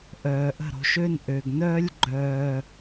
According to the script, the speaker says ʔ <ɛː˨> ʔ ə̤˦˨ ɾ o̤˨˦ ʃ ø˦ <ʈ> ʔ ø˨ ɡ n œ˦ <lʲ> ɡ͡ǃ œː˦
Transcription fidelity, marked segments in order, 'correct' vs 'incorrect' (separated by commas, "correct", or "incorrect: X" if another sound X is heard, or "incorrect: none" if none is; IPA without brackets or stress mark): incorrect: œː˨, incorrect: n, correct